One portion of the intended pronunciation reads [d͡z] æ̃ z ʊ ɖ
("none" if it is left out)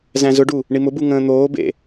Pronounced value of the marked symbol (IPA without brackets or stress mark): z